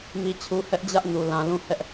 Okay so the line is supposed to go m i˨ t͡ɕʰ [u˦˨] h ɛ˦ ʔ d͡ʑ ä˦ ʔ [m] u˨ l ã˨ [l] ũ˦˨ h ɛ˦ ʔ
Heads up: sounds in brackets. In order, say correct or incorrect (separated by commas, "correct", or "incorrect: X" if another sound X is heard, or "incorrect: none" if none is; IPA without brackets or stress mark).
incorrect: u˨, incorrect: n, correct